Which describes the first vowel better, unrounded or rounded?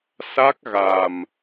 unrounded